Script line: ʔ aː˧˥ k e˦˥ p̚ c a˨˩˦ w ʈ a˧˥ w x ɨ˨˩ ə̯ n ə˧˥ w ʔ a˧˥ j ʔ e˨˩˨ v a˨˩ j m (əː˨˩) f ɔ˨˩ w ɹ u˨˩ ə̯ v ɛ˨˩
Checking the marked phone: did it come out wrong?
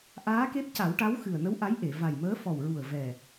yes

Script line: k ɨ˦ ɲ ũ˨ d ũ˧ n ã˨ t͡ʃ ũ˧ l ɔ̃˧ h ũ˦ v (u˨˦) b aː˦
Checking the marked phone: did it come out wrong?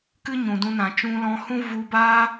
yes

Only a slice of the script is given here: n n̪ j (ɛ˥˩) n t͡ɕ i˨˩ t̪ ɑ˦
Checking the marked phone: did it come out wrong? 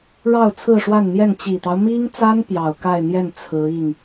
no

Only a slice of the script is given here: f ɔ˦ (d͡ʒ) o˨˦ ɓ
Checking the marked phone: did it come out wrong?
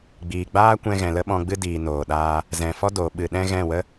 yes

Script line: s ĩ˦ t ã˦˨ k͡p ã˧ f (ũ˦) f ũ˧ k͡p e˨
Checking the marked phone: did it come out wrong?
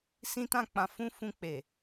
no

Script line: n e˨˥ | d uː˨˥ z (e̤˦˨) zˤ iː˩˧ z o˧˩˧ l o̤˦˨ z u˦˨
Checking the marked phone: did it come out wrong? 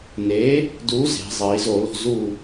yes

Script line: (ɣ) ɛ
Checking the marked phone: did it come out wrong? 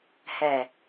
yes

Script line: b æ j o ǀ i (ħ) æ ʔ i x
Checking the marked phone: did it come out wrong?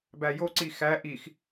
yes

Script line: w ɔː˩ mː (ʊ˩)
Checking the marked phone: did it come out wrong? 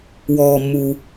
yes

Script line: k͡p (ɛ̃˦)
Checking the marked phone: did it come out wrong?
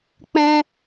no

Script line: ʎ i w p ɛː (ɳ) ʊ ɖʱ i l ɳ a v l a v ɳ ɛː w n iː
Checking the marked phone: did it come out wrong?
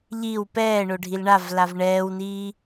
no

